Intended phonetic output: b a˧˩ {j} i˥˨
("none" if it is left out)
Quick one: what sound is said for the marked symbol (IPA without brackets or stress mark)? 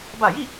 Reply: j